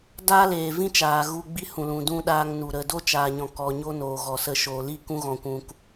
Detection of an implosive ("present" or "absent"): present